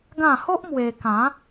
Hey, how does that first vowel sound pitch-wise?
falling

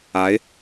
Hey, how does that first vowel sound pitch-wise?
rising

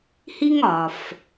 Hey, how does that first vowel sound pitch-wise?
high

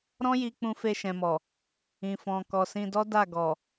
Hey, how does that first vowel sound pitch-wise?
high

